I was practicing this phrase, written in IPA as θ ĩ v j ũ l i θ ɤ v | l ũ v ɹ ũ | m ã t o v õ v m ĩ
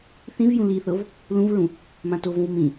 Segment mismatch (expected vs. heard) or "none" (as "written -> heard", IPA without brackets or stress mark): none